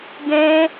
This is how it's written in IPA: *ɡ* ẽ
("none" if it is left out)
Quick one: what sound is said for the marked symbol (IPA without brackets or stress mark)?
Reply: ɡ